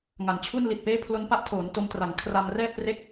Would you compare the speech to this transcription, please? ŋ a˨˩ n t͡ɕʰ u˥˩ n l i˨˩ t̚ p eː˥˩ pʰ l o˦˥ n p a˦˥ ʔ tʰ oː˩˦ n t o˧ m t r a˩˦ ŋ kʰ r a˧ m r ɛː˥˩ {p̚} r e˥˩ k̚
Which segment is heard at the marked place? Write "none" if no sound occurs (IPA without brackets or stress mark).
p̚